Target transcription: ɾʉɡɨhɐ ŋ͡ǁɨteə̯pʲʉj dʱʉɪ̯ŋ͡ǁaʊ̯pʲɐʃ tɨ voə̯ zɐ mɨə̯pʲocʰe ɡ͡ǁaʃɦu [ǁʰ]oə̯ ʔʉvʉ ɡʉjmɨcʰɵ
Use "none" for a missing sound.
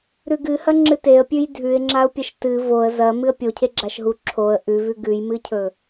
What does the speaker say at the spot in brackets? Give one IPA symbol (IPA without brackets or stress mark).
ǁʰ